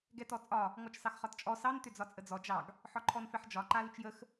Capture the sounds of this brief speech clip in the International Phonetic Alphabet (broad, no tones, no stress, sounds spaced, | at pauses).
ɡ ɛ t ɔ t͡sʼ ɒ | ŋ ɔ t͡ʃ s ɑ x χ ɒ t t͡ʃʼ ɔ s ɑ n t ʏ d͡z ɒ t͡sʼ ə d͡z ɔ d͡ʒ ɑ ɡ | ħ ɒ ǃʰ ɔ n f ɛ ħ d͡ʒ ɒ ǃ a l ʏ t͡ʃ j ə x